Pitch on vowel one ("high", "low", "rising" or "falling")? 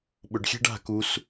low